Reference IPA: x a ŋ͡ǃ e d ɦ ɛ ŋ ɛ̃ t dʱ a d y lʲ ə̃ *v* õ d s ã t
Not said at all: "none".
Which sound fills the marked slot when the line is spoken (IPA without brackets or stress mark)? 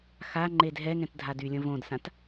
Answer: v